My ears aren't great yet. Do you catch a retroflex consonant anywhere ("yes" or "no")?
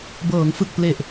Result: no